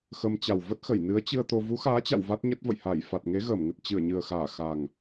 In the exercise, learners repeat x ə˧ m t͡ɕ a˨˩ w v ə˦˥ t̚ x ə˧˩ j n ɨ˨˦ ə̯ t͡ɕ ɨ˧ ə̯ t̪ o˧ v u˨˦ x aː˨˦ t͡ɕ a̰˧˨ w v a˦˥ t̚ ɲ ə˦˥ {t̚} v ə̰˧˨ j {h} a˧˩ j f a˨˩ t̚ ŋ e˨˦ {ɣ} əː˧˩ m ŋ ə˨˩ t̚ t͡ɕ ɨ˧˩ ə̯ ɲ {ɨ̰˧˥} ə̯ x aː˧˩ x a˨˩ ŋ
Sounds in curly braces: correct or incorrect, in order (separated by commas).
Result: correct, correct, correct, incorrect